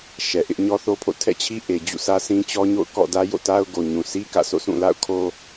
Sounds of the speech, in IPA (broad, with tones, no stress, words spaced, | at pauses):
ʃɛ˨ʔɪ˦ʔ ɲɔ˦θo˦pʰo̰˦˨ tʰɛ̰˦˨t͡ɕʰi˦ ʔe˨d͡ʑṵ˦˨ sä˦sʰĩ˦t͡ɕɔ˦ɲo̰˦˨ʊ̯ kɔ̰˦˨ dä˦jo̰˦˨ta˦ʊ̯ ɡo˨ɲũ˨ sʰi˦ kä̰˦˨so̰˦˨ sʰũ˦˨la̰˦˨ʊ̯kʰo˦